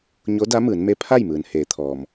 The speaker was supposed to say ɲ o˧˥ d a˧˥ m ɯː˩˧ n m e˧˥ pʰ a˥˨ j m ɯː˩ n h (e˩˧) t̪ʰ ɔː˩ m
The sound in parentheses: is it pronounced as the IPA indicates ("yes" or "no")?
no